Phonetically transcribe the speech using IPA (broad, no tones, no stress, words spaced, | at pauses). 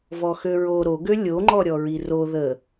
vɔxøɹo ɾoɡø lʲoŋ͡ǃɔɾʲɔɹi ro ðə